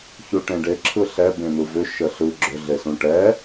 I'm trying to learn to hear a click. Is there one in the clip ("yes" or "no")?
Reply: yes